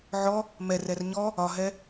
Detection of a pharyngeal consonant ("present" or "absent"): present